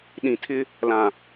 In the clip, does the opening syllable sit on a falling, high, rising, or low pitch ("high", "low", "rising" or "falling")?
low